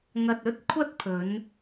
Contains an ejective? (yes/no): no